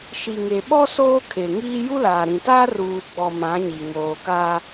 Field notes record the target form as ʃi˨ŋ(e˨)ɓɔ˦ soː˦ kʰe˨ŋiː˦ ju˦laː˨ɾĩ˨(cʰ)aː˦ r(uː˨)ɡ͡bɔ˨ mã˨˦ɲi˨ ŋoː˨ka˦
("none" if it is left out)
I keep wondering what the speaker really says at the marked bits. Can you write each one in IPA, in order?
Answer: e˨, t, uː˨

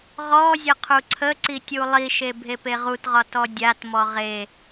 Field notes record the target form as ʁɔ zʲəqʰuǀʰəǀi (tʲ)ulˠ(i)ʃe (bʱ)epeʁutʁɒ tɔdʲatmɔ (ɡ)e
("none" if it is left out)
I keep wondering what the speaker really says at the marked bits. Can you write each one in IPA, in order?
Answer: tʲ, i, bʱ, ʁ

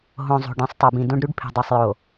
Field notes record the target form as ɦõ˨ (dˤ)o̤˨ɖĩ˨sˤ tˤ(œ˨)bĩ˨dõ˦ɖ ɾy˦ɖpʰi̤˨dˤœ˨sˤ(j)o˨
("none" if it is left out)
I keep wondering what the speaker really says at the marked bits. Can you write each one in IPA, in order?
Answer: zˤ, œ˨, j

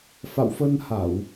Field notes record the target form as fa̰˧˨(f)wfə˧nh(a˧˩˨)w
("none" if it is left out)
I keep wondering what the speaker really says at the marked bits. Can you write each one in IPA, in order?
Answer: none, a˧˩˨

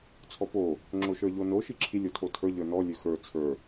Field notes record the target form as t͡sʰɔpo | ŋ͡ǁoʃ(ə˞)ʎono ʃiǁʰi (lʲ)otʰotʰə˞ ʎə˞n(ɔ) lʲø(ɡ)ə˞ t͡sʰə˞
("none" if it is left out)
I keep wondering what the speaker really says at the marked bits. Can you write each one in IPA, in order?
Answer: ə˞, lʲ, ɔ, x

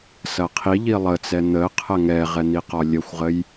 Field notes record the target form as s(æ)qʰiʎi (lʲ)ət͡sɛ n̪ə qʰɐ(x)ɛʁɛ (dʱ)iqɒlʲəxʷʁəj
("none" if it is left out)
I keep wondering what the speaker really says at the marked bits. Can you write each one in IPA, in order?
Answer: ɐ, lˠ, ŋ, n̪

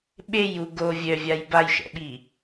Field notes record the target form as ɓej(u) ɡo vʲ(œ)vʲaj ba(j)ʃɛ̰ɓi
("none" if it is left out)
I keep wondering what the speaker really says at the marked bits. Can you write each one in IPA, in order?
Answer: u, œ, j

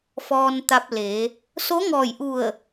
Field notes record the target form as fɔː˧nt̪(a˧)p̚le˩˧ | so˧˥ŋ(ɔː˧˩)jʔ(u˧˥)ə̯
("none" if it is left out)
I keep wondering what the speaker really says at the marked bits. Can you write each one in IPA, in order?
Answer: a˧, ɔː˧˩, u˧˩

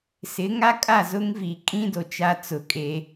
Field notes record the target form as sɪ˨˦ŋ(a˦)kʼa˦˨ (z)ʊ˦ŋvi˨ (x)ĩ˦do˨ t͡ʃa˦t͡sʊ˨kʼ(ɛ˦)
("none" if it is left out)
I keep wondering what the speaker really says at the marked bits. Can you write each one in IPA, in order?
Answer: a˦, z, kʼ, e˦

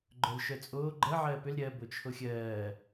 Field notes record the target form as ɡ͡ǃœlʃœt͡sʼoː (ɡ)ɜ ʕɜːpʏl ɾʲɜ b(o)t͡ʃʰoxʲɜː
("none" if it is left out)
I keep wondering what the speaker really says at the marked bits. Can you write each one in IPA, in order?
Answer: ɡ͡ǃ, o

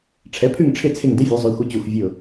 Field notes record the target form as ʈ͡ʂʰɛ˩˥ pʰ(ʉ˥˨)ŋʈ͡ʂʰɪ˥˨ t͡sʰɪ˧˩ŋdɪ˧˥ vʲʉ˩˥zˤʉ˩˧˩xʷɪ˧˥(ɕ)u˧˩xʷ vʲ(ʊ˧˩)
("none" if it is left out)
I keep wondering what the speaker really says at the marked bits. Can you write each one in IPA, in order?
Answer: ʉ˥˨, t͡ɕ, ʊ˧˩

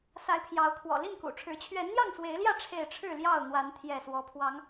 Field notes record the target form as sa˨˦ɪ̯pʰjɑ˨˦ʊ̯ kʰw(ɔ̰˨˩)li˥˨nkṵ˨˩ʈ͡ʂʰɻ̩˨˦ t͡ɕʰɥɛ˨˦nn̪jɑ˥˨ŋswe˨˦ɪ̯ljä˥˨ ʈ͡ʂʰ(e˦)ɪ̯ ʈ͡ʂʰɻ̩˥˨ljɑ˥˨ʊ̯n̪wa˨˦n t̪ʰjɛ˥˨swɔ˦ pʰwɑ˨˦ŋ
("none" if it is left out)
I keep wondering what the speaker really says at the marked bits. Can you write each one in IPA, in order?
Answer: ɔ̰˨˩, e˥˨

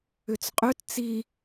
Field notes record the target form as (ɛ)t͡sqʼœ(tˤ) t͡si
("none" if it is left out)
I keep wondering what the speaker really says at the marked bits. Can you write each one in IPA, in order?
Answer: ʏ, t

